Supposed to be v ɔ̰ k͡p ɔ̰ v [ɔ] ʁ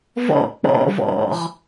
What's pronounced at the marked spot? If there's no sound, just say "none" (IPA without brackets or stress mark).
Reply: ɔ̰